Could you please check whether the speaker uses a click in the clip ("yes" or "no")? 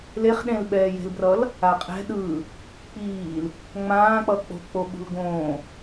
no